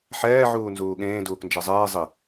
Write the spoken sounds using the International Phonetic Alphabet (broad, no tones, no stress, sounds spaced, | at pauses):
ħ ɛː ʕ uː n z uː ɠ ẽː d uː k n d͡ʒ e zˤ eː zˤ i